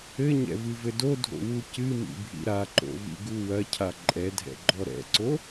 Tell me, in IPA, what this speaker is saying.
ɘ ɲ ɛ̰ v ɨ v ɘ d o dʱ o̰ w u c ɨ m ḭ bʱ ḭ ɾ a ǃ o̰ v ḭ ɡ u w ɐ cʰ a ǃʼ ɛ dʱ ɛ̰ ɡ͡ǃ ɔ ɾ ɛ̰ ǀ o

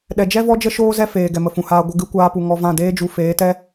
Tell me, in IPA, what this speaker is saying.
ɗ ɛ˨ d͡ʒ ɛ˦ v ɔ˦ d͡ʒ ə˦ ʃ oː˦ z ɛ˦ f eː˨ ɡ ɛ˨ m ə˨ f ũ˨ h aː˧ ɡʷ ə˧ ɡ ɨ˨˦ kʷ aː˧ p u˨ ŋ ɔ˧ v ã˦˨ d eː˦ d͡ʒ u˧ f eː˨˦ t ɛ˦

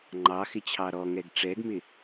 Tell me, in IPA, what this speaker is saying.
ŋ͡ǃ ɑ x ɪ t͡ɕʰ ɑ ɾ ɔ ŋ ɛ ɡ ʈ͡ʂ ɛ ɡ m ɪ

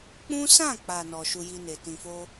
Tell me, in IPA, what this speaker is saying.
k͡p ũ˦ s ã˦˨ k͡p a˨ n ɔ˨ ʃ u˧ j i˧ n e˨ t ĩ˨ f o˧

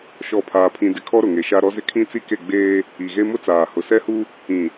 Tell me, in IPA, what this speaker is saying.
ʃ ɔ˦˨ pʰ aː˦ pʰ ĩ˦ d ɪ˦ kʰ ɔ˦ ɾ ʊ˨ ŋ e˨ ʃ a˦ ɾ ɔ˦ z ɪ˦ kʰ ĩ˦ t͡s i˦ k e˦˨ ɡ͡b eː˦ | i˨ ɣ e˦ m ʊ˦ t͡s aː˨ h ʊ˨ s ɛ˦ h u˦ | ĩ˨

